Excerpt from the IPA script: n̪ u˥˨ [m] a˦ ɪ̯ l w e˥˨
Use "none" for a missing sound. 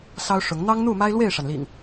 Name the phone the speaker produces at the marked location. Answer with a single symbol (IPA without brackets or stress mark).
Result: m